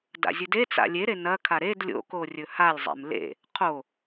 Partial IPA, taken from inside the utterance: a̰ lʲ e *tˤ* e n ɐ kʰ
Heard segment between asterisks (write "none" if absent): ɾ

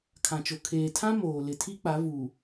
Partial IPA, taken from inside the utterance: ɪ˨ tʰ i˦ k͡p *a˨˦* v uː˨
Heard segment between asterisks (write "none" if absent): a˨˦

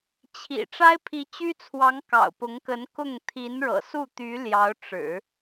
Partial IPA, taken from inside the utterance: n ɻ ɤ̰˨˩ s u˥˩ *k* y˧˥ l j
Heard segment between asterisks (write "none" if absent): t̪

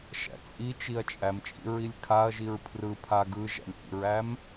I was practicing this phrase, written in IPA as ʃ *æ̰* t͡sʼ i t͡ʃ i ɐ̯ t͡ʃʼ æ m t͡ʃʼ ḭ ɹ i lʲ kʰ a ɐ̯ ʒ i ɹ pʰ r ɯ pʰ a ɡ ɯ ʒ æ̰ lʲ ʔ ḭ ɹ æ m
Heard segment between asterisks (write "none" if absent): æ̰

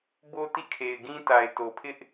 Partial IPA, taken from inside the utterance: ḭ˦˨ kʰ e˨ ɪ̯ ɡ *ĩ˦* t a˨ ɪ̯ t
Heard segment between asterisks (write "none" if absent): ĩ˦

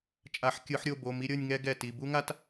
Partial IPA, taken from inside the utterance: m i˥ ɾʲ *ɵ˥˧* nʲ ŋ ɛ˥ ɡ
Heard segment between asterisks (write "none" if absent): ɤ˥˧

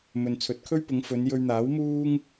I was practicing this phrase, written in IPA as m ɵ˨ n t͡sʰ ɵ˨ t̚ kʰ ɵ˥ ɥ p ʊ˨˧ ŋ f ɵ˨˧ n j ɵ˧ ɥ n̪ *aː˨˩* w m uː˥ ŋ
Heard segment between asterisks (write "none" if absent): aː˨˥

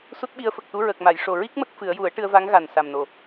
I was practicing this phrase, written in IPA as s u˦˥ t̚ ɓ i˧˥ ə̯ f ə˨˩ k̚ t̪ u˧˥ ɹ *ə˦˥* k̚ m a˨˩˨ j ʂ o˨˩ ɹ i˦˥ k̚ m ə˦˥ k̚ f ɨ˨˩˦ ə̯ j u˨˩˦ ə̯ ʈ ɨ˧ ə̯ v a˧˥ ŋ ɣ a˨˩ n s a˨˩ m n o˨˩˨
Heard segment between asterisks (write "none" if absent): ə˨˩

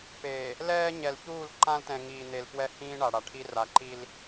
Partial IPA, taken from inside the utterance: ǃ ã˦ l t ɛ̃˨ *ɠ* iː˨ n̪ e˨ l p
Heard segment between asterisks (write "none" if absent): ŋ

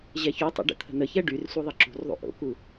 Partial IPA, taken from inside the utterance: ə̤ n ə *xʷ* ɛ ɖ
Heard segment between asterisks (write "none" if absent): ç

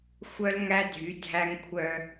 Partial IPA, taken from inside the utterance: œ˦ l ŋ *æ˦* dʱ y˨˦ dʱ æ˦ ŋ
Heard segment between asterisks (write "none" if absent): æ˦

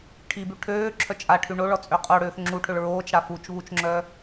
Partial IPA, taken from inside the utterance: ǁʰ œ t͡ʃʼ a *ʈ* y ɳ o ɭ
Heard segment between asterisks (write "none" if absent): ʈʰ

